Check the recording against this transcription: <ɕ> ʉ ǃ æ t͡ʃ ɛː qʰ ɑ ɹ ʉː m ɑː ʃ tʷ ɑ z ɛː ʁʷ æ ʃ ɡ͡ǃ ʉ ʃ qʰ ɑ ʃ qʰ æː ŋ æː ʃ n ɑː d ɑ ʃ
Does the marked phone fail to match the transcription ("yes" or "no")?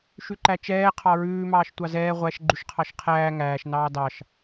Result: yes